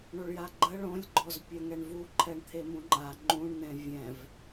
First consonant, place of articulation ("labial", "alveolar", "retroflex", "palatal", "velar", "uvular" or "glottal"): retroflex